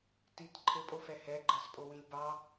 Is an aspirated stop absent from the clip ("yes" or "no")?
no